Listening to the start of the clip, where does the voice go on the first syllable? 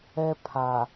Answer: high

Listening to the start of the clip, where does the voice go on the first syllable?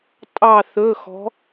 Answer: falling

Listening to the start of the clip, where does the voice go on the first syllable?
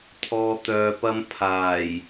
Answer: low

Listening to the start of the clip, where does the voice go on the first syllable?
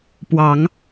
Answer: low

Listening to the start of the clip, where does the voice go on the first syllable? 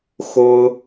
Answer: high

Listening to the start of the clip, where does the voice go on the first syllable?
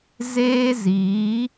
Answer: high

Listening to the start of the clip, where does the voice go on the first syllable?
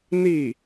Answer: falling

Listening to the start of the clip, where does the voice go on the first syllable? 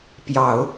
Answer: low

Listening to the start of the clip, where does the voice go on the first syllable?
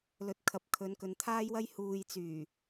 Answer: rising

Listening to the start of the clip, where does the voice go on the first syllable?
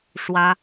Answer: high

